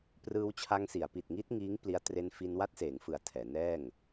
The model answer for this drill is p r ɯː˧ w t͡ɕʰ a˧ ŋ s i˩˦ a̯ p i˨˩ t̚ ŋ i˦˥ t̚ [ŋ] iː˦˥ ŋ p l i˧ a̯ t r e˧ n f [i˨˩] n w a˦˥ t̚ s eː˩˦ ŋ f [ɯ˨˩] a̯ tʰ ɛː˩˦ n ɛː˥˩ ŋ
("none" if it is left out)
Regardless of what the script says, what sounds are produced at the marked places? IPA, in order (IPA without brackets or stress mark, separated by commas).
ŋ, i˧, ɯ˩˦